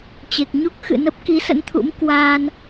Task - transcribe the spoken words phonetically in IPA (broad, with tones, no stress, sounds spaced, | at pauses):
t͡ɕ e˨˩ k̚ ɲ u˦˥ k̚ x ɨ̰˧˨ n ə˦˥ p̚ k i˨˦ s ə̰˧˥ n t̪ʰ ṵ˧˥ m k w a˧ n